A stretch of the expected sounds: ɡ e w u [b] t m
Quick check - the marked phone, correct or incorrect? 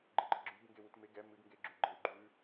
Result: incorrect